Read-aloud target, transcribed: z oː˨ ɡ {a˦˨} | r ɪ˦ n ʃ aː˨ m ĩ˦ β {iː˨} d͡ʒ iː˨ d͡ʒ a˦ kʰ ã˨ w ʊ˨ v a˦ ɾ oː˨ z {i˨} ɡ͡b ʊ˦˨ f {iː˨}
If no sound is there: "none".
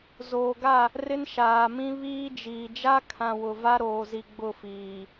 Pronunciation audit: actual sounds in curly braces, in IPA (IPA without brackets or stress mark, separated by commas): a˦˨, iː˦, i˨, iː˨